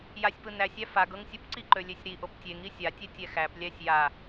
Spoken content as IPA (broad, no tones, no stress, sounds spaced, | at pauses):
j a sʲ p ɯ n æ sʲ æ f a ɡ ɤ ŋ sʲ ɯ p ǀ i ǃ ø lʲ e sʲ ɾ i ʔ o p tʲ e ŋ i sʲ a tʲ ɛ tʲ ɛ x æ p lʲ æ sʲ j a